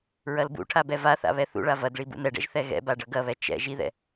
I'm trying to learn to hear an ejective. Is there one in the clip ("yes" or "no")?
no